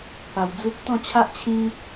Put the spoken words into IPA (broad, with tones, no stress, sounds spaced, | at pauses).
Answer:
p a˧ w d͡z u˦ p̚ t̪ ɔ̃˥˧ t͡ɕʰ a˦ ʔ t͡ɕʰ ĩ˧